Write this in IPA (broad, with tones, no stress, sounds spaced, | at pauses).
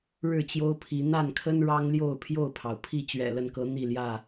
ɻ ɻ̩˥˨ t͡ɕ j o˦ ʊ̯ pʰ i˨˦ n̪ a˥˨ n kʰ ə˦ n ɻ ɑ˦ ŋ l j o˥˨ ʊ̯ pʰ j o˥˨ ʊ̯ pʰ ɑ˩ ʊ̯ pʰ i˥˨ t͡ɕ ɥ ɛ̰˨˩ l ə˥˨ n k ɤ˨˦ n̪ i˥˨ l j ä˥˨